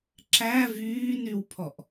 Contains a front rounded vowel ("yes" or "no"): yes